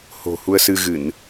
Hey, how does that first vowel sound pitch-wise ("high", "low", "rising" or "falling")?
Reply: low